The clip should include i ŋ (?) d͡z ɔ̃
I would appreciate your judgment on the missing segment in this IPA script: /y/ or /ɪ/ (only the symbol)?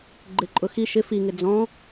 ɪ